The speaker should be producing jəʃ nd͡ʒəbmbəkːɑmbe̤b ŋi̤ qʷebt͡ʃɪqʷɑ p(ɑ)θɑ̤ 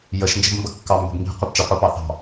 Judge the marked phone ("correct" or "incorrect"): correct